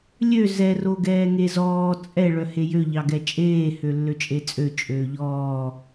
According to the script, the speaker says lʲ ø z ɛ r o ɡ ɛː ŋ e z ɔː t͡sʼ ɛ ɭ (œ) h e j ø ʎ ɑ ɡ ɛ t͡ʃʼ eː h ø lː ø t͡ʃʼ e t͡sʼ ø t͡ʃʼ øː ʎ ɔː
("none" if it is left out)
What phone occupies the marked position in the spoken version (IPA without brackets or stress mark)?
œ